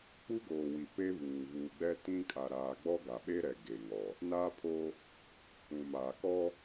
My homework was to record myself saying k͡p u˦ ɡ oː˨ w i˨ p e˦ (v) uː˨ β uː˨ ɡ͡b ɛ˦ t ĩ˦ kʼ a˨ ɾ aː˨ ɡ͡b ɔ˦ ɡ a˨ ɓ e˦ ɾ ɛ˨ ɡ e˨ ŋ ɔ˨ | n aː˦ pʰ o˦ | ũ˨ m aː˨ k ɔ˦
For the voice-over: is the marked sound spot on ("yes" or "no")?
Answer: no